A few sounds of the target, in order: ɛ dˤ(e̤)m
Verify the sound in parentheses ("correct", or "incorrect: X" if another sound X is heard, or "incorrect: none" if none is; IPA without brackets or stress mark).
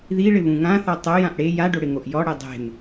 correct